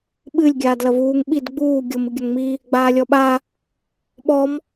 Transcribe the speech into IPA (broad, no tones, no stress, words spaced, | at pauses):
ɓɨlʲ ɡʲaːdlɐvuːŋ ɓid ɡ͡buː ɡʲom ɨɡʲɐŋmi | ɡ͡baːlʲɔɓa | ɓɔm